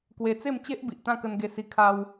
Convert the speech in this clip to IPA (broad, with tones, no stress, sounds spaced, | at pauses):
k w e˧ t͡s e˥˧ m t͡ɕ e˦ ʔ b i˨ ʔ t̪ ã˥˧ k ə˧ n ɡ e˧ s i˧ kʰ a˧ w